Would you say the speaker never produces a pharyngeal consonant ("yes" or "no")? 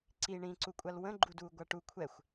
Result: yes